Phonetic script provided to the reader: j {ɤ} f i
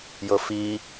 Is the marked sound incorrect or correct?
correct